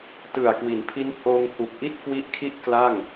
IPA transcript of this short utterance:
t ɯ˨˩ a̯ k w i˩˦ n pʰ i˦˥ n h oː˧ ŋ h u˨˩ k̚ ʔ i˥˩ t̚ k w i˦˥ ʔ kʰ i˥˩ ʔ k l a˥˩ ŋ

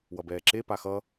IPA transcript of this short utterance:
w ʌ b ɛː ǁ e p a x ʌ

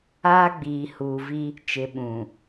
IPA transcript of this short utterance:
aː˦ ɡ͡b iː˨ h uː˨ v i˦ | t͡ʃ ɪ˨ ɓ ũ˨

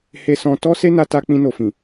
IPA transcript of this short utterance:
h e˧ s ɔ̃˧ t ɔ˦ s e˦ n a˧ t a˧ k͡p ĩ˧ n o˨ f ĩ˨

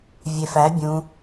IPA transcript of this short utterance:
vʲ e f æ bʲ ũ

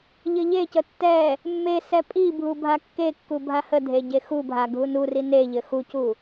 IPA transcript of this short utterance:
ʎ ɘ ʎ e c ə tː ɛ | mː e s ɛ pʼ i bʱ u bʱ a kː e kː u bʱ a h ə dʱ e ɟ e x u bʱ a ɡʱ u n u r i n e ʎ ɘ x u c u

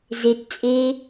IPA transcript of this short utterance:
z e t t͡sʼ eː

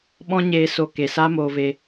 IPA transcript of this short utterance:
ɓ ɔ̃˦ ɲ eː˧ s oː˦ k e˧ s aː˦ m oː˧ v e˧

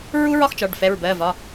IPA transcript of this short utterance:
ɹ u˦ ɹ ɒ˦ x t͡ʃ ɒ˩˧˩ ɖ f ɛ˩˧˩ ɹ b ɜ˩˧˩ v ɒ˩˧˩

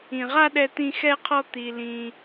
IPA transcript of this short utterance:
ĩ˧ ʁ a˥ ɗ ɛ˥ t̪ ĩ˥ x ɛ˥ qʰ ɔ˥ t̪ i˧ l ĩ˧

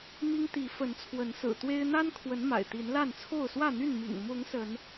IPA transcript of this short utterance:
m i˦ ŋ t̪ i˨˦ f ə˨˦ n t͡sʰ w ə˨˦ n s ɹ̩˨˩ t̪ w e˦ ɪ̯ n̪ a˦ n kʰ w ə˨˦ n m a̰˨˩ ɪ̯ t̪ i˨˦ n l a˥˨ n t͡sʰ o˥˨ ʊ̯ s w ä˥˨ n̪ y˥˨ n m ḭ˨˩ ŋ m ʊ˨˦ ŋ s ə˨˦ n

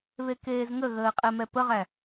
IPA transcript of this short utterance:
β e k eː z ŋ ə ɣ əː qʼ ɛ m ɛ p ə ʁ æ

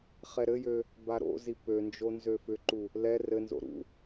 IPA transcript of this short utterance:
χ ɛ ɾ ɘ j ø | b a ɾ o̰ z i p ø n d͡ʒ o n z ø f ʏ ǃ u | l ɛ r ɘ n z o̰ ɾ ṵ

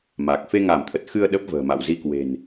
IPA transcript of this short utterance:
m a˨˩ k̚ f e˧ ŋ a˧˩ m t̪ʰ ə˨˩ t̚ x ɨ˧ ə̯ ɗ ə˦˥ p̚ v ə̤ː˨˩ m a̰˧˨ w z i˧ k w e̤˨˩ n

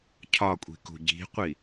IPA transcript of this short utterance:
cʰ ɒ kʷʼ i̤ k ṳ ɟ i̤ qʷ i

